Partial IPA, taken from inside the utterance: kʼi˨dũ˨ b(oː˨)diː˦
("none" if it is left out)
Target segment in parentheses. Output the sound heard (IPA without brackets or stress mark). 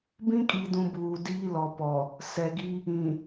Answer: uː˨